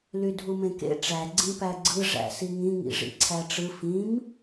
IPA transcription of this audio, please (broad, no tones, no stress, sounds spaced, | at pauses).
l y dʱ u m ẽ k ḛ ʈ͡ʂ æ ɡ͡ǀ ĩ p æ ɡ͡ǀ ɯ ʐ æ̰ s i ŋ ĩ ŋ ḭ ʐ ḭ ǀʰ æ ʈ͡ʂ ɯ f ĩ m